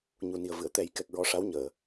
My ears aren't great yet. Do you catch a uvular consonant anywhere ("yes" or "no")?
no